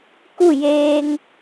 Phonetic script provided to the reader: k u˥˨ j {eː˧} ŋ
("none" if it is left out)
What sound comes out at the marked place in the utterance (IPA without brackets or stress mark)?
eː˧